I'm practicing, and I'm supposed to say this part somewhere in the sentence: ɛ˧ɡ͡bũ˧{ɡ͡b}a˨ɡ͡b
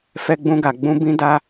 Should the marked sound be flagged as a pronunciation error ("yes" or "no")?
yes